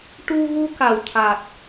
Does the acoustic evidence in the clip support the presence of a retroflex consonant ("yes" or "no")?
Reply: yes